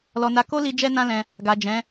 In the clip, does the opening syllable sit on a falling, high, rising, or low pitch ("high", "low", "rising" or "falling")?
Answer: low